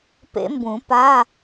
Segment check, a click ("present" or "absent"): absent